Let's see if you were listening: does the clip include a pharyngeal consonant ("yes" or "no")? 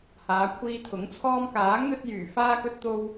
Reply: no